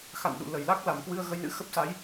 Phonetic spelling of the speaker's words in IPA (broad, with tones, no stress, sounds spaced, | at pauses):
x a̰˧˨ n ɗ ṵ˧˨ l ə˧˩ j l a˦˥ k̚ l a˧˩ m k w ɨ˧ ə̯ ɣ ə˧ j n ɨ̰˧˥ x ə˦˥ p̚ s a˨˦ j